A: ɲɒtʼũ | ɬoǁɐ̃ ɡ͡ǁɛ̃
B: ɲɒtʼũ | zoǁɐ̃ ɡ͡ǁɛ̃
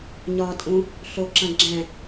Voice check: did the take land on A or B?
A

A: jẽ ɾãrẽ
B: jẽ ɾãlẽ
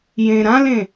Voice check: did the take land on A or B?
B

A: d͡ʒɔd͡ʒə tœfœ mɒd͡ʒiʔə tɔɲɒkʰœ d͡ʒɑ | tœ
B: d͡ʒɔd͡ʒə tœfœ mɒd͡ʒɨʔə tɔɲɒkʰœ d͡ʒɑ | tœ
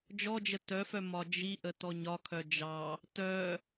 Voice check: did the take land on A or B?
A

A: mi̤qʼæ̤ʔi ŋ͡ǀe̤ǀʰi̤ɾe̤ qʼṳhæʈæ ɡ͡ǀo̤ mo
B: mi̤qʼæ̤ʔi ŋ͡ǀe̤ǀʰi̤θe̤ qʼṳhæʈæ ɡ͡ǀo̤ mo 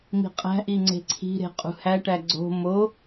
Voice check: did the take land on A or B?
A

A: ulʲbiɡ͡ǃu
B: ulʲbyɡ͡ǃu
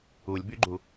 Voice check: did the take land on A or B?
B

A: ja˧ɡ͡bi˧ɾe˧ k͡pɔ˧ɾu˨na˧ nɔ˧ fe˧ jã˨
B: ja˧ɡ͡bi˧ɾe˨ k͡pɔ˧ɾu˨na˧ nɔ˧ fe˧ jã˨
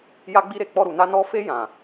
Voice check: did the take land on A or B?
B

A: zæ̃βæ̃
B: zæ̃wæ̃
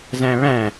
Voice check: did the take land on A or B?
A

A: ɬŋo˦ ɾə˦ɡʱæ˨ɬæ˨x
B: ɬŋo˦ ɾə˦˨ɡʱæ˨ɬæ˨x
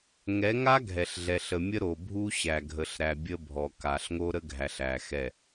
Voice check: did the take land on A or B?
A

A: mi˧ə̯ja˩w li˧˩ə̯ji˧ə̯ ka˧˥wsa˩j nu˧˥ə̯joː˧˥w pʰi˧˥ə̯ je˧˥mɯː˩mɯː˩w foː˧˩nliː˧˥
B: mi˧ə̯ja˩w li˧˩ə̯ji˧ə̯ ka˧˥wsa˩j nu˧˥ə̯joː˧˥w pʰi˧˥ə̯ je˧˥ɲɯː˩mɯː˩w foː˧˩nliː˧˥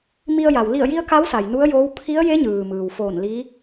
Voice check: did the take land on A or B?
B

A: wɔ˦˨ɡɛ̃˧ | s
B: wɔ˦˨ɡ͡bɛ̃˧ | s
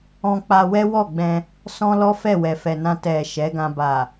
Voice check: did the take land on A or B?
B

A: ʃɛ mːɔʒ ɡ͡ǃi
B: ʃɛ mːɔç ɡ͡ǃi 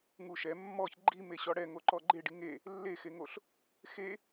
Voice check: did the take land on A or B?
B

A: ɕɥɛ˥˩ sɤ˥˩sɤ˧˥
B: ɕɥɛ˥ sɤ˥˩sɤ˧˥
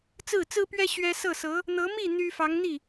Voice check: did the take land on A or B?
B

